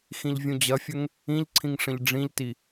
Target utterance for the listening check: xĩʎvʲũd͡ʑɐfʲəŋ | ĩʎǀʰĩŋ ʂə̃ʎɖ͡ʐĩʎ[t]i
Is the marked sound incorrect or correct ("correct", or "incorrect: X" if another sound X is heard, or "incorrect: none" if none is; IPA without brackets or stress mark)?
correct